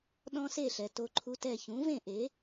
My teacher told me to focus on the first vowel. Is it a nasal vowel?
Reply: yes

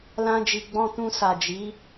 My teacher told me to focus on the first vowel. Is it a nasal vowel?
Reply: yes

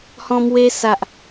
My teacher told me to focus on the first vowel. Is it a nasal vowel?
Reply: yes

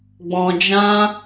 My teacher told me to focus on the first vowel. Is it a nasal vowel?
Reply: yes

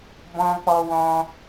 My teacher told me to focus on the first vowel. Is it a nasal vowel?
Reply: yes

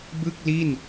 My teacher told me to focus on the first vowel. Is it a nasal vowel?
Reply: no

